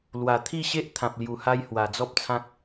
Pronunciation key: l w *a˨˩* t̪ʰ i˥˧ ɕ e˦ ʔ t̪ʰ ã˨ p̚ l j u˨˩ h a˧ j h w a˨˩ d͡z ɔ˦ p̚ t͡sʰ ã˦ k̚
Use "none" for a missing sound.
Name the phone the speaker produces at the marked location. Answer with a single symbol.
a˨˩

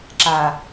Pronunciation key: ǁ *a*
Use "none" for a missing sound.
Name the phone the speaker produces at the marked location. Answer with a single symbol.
a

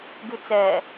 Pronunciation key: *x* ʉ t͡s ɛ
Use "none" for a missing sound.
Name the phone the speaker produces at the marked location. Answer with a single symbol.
ɡ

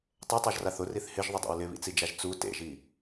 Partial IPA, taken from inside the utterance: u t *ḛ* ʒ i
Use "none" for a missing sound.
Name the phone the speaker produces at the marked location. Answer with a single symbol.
ḛ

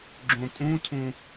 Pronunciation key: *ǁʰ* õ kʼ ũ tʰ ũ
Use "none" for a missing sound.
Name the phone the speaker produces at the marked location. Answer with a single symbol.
ɡ͡ǁ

